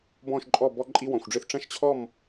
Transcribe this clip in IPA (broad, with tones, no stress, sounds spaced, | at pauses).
b ɔ̃˥˧ ʃ ǃʼ ɔ˥˧ b ɔ˥ ǃʼ i˥ w ɔ̃˧ xʷ ɖ͡ʐ ɨ˥˧ θ ʈ͡ʂ ɐ̃˥˧ ʃ t͡ɕʰ ɔ˥˧ m